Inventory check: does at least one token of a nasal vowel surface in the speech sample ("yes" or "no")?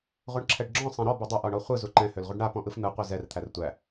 yes